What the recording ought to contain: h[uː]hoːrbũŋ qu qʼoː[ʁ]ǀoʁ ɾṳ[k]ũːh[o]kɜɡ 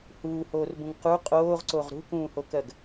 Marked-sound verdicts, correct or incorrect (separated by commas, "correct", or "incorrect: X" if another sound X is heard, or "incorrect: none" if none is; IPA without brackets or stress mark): correct, correct, correct, correct